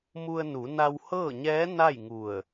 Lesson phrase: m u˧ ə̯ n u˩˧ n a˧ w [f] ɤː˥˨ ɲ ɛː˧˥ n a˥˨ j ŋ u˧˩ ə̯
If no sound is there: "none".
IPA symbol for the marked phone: h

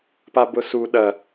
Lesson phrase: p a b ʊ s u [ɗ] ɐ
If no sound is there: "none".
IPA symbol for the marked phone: ɗ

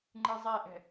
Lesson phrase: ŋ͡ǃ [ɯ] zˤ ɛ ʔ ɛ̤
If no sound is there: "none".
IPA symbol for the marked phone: ɯ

